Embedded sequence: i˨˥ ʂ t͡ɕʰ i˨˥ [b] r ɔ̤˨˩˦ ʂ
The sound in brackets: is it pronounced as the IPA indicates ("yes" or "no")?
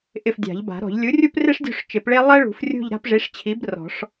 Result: yes